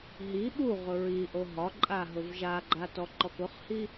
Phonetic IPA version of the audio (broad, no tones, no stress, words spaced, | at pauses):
ɦi ɓu ʁʊɹiʔo ɦɒǃʼa ɦʊvʒaɡ͡ǃa tɔǃɔkʊχhi